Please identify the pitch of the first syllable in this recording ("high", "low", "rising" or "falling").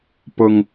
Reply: low